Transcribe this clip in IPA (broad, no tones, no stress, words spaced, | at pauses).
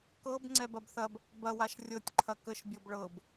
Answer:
kɤb ŋ͡ǀɛbɐbθɐb | bɐwaʃ rʲɤtʲǃʰɐ kəʃbʲɤb ɭɤb